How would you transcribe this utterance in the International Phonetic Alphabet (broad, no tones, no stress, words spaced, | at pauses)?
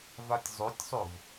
vatʲzˤotʲsˤov